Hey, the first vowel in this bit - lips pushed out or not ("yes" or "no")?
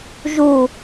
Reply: yes